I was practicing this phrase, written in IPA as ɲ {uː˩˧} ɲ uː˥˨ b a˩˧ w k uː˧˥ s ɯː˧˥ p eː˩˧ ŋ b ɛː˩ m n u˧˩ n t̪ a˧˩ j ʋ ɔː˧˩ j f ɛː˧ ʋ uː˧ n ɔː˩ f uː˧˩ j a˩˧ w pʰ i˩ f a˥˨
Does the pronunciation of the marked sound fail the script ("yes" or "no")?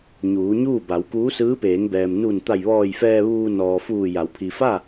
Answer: no